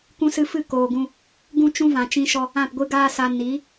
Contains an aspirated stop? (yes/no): no